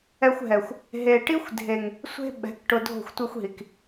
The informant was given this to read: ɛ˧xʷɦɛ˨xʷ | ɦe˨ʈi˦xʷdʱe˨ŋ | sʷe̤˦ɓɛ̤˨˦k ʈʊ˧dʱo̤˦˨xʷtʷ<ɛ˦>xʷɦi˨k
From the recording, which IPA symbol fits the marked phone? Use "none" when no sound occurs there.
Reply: ɛ˦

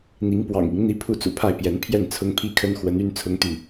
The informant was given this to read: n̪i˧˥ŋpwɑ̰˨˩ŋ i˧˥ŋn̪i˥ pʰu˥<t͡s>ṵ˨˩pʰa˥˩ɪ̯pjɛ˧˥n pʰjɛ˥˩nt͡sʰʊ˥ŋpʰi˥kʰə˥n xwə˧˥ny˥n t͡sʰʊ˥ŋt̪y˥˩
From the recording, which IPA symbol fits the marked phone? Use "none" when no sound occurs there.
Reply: t͡s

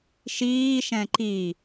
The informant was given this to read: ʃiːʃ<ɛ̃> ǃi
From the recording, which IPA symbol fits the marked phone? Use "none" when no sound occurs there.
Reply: ɛ̃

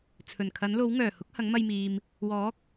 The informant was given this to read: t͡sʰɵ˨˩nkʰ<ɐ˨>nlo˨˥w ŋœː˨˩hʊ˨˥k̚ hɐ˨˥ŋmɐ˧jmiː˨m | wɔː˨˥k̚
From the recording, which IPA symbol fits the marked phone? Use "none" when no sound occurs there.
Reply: ɐ˨˥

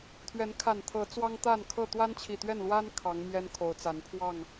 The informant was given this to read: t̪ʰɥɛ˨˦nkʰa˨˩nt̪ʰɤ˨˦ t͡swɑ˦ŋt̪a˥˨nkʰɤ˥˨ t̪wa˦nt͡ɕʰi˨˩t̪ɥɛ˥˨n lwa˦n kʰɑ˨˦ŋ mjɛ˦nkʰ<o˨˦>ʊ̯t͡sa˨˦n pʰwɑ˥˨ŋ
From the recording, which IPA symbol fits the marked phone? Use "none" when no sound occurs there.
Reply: o˨˦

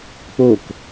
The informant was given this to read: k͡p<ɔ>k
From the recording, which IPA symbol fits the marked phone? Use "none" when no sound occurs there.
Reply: o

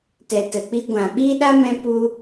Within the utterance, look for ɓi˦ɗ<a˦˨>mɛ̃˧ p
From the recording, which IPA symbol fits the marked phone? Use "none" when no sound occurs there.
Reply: a˦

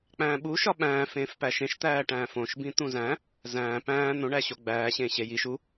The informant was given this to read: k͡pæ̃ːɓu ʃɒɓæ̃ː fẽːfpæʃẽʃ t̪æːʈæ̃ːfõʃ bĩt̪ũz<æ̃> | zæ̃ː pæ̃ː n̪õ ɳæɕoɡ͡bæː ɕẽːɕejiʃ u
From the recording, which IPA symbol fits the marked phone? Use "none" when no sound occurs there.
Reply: æ̃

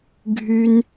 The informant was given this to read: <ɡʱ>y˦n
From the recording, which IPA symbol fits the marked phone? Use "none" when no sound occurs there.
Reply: ɡʱ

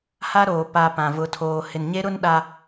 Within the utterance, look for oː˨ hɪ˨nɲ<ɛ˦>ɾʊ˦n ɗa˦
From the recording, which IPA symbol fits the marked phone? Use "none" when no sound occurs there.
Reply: e˦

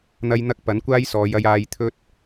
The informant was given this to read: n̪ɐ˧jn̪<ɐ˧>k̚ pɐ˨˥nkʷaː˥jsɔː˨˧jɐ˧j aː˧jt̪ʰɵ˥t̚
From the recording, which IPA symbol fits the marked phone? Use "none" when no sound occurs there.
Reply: ɐ˧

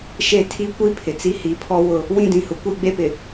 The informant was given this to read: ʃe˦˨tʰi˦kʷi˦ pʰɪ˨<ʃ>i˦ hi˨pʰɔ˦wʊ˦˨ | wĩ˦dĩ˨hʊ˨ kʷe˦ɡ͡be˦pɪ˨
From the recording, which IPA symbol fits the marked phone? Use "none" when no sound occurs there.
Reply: t͡s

